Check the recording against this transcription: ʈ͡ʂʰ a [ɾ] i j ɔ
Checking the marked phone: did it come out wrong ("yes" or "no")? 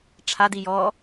yes